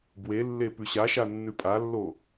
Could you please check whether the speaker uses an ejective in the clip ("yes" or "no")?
yes